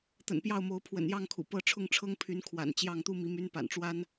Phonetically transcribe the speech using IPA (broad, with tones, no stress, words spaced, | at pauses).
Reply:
t̪ə̰˨˩npjɑ˥˩ʊ̯mo˧˥ʊ̯ pʰwə̰˨˩njɑ˥˩ŋkʰṵ˨˩ pɤ˥˧ ʈ͡ʂʰʊ˥˩ŋʈ͡ʂʰɤ˥ŋpʰy˧˥n kʰwa̰˨˩n t͡ɕjɑ˥˩ŋ t̪u˥mi˧˥ my˥n pa̰˨˩nʈ͡ʂwa˥n